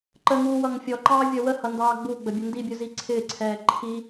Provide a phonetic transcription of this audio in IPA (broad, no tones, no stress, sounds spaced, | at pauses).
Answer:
ǃ ə ŋ u w ʌ ŋ fʲ ɔ ǃ ɑː vʲ ʌ w ə h ʌ n d ɑː ɡ͡b u ɡ͡b ə bʲ ʊ n d i bʲ ʊ z i ǀʰ ɪː ǀʰ ɛː ǃʰ i